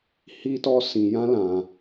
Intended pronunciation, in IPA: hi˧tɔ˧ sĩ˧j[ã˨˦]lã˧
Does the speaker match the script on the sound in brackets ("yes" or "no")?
no